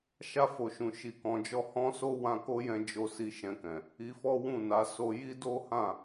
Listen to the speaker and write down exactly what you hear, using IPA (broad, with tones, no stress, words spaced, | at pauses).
ʃa˧ fo˨ʃũ˨ ʃi˧kɔ̃˧d͡ʒɔ˦ hɔ̃˦so˦ wã˧ko˦jɛ̃˧d͡ʒo˧ si˧ʃɛ̃˧kɛ̃˨ | i˧fɔ˦ wũ˦˨na˨˦ so˧ji˦ do˦hã˦˨